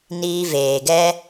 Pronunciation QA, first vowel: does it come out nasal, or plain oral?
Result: oral